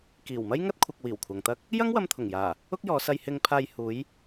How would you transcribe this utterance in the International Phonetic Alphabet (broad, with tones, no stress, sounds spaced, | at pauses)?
k iː˨˩ w m ɐ˥ j ŋ ɐ˥ t̚ kʷʰ ɐ˧ k̚ w iː˨˩ w kʷʰ ɐ˨ ŋ t̪ ɐ˥ k̚ | j ɐ˥ ŋ w ɐ˧ m t̪ʰ ʊ˨˩ ŋ j aː˨˩ | ʊ˥ k̚ j ɔː˨˧ s ɐ˧ j h ɪ˧ ŋ pʰ aː˧ j h uː˨˧ j